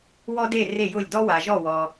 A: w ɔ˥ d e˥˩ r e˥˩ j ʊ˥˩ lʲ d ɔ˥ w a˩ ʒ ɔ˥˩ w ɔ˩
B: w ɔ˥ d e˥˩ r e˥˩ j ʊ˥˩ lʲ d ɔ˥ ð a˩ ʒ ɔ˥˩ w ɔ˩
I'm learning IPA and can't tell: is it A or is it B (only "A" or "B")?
A